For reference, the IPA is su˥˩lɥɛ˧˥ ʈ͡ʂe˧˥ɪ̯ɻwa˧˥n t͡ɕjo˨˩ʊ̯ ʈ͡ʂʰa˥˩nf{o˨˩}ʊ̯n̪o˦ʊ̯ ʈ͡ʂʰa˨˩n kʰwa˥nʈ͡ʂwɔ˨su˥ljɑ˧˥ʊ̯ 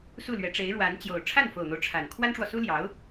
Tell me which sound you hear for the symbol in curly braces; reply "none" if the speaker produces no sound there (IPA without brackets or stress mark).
o˨˩